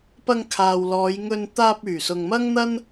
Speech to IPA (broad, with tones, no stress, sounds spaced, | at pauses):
p ɐ˧ ŋ kʰ aː˨ w l ɔː˨˧ j ŋ ɵ˧ n t̪ aː˧ p̚ yː˨˩ s ʊ˨ ŋ m ɐ˥ ŋ n̪ ɐ˥ n